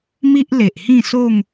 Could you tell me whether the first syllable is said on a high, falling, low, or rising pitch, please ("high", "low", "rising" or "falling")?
high